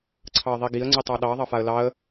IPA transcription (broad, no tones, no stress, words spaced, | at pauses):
ǀʰɑə̯ðˤiɡiə̯ ŋ͡ǀitˤɑɗɑ ðˤɑfaə̯lɑə̯